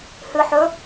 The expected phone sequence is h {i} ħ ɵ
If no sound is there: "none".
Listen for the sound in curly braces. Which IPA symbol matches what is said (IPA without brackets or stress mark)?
ɨ